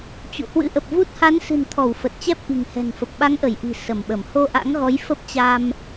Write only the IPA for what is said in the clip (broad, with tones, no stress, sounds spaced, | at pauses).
t͡ɕ ṵ˧˨ h w ɨ̰˧˥ ʔ ə˨˩ p̚ v u˦˥ t̚ h a˨˦ n s ɨ̤˨˩ n t̪ʰ ɔ˧˩ w f ə˨˩ t̚ t͡ɕ ɛ˦˥ p̚ ʔ i̤˨˩ ŋ h ɛ̤˨˩ n f ə˨˩ p̚ ɓ a˨˦ ŋ ʔ ə˧˩ j ʔ i̤˨˩ s ə˧˩ m ɓ ə˧˩ m h o˧ ʔ a̰˧˥ ŋ ɣ ɔ˨˦ j f ə˦˥ p̚ t͡ɕ a˧ m